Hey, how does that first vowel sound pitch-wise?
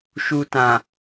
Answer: low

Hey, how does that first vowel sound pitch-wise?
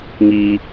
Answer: low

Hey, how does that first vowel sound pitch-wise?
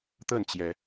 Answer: falling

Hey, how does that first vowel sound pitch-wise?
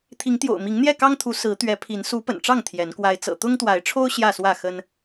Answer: rising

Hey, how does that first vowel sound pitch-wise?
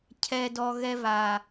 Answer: low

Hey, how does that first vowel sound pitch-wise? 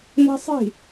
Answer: high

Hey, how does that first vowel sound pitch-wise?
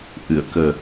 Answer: low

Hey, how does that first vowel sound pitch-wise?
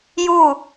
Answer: falling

